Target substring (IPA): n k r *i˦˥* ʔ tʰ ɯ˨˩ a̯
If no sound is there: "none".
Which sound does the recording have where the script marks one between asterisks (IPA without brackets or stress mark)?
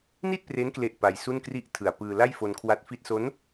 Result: i˥˩